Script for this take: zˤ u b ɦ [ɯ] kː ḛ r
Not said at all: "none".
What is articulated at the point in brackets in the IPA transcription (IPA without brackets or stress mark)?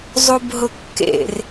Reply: ʊ